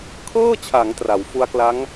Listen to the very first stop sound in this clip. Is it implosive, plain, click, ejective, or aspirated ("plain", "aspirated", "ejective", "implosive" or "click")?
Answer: aspirated